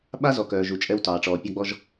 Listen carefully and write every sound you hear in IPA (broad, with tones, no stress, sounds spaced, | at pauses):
ɓ a˦ z ɔ˨ k œː˨ ʒ u˨ t͡ʃʼ ɛ˦ w t ɑː˨ ʈ͡ʂ ɔː˨ pʲ ɑ˦ ɡ͡b ɔ˦ ʒ